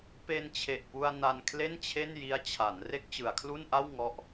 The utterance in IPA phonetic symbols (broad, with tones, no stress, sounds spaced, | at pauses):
p e˧ n t͡ɕʰ e˨˩ ʔ p u˧ a̯ n a˧ n kʰ l e˥˩ n t͡ɕʰ e˥˩ n j i˦˥ a̯ t͡ɕʰ a˩˦ n r e˥˩ k̚ t͡ɕ ɯ˩˦ a̯ kʰ l u˥˩ n ʔ a˥˩ w ŋ ɔ˦˥ ʔ